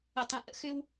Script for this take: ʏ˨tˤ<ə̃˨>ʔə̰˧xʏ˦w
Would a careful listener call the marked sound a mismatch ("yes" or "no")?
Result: no